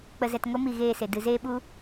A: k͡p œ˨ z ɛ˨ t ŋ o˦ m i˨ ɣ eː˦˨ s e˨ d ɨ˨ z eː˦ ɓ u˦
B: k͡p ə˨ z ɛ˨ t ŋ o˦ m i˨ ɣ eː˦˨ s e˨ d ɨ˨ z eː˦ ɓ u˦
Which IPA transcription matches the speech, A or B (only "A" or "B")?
B